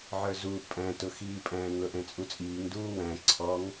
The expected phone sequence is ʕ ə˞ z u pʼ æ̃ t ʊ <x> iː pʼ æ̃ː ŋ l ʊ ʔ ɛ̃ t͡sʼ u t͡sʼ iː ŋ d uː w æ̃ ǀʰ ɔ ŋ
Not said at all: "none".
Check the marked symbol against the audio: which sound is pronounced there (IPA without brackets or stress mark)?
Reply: x